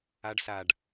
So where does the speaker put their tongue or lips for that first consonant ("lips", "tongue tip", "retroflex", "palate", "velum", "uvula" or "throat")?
retroflex